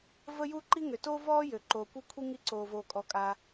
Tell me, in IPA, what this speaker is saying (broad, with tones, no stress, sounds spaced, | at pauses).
v ə˥ j u˥ ǃ i˥ ŋ ø˩ t oː˥ v ɔː˥ j ø˩ ǃ oː˩ kʷ e˥ kʷʰ i˥ ŋ i˥ ǀ oː˩ v oː˩ kʼ ɔ˩ kʼ a˩